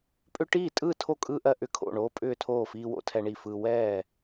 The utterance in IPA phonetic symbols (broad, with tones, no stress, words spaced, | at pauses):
pʼʏ˦ʈiː˥˩ tʼɯː˥˩tʰo˥˩kʼɯː˦ ʔɜ˦ʔʏ˦kʰo̰˥˩ɳoː˦ pʼʏː˥˩tʰoː˥˩ fiː˦wo̰˦ tʰɛ˦ɳi˥˩fɯː˦ wɛː˥˩